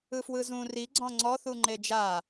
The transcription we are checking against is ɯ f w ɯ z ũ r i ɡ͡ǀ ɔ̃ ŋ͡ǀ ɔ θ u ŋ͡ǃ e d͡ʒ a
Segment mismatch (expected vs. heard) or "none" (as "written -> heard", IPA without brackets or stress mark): none